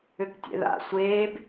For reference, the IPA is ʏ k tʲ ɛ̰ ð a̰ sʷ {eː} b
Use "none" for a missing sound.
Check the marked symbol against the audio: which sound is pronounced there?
eː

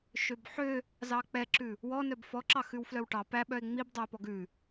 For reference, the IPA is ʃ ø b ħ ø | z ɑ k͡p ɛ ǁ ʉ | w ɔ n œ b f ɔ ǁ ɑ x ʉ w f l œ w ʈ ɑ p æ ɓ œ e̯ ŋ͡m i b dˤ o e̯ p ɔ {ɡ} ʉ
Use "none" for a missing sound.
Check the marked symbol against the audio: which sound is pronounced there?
ɡ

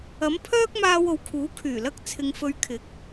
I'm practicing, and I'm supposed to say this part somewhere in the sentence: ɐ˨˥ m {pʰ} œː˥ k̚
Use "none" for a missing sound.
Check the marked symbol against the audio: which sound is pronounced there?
pʰ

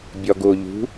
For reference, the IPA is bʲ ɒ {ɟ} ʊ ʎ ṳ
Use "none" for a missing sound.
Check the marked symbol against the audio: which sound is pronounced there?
ɡ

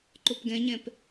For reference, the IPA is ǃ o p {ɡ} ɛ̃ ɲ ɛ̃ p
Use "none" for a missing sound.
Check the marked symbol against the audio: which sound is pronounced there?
ɡ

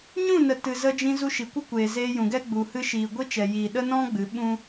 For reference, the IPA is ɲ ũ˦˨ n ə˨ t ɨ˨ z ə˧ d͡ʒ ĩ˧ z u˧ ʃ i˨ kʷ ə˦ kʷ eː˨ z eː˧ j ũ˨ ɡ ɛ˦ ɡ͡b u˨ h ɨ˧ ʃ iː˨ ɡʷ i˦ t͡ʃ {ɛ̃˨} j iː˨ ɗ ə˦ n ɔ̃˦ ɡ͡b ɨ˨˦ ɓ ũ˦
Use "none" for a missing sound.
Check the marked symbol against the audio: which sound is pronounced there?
ɛ˨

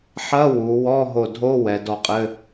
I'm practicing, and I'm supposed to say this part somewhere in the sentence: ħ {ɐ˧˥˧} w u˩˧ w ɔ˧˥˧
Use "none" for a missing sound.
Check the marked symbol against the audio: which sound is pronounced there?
ɐ˧˥˧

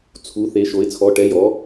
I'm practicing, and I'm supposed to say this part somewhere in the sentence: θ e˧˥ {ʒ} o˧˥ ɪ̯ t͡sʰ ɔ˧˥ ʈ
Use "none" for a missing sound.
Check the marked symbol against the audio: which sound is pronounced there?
ʃ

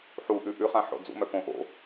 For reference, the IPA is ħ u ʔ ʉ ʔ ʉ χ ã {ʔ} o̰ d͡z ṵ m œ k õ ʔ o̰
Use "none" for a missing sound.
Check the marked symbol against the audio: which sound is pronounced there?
ħ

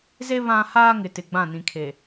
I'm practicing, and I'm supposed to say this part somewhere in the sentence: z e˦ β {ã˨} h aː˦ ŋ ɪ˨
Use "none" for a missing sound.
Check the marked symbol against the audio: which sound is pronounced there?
ã˦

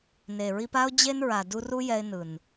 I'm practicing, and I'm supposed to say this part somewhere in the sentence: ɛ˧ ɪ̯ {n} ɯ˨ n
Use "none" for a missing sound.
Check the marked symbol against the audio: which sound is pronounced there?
n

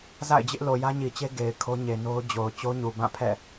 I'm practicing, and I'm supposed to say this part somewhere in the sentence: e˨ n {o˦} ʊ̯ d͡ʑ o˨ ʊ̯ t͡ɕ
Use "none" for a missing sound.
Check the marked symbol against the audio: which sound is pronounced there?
o˦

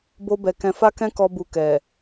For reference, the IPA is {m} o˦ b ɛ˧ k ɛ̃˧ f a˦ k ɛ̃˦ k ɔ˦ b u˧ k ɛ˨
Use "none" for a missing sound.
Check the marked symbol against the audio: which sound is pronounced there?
b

